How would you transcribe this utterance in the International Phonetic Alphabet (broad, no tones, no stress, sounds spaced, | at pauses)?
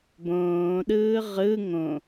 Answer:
b õː ɗ ɯː ʁ ɯ ŋ õ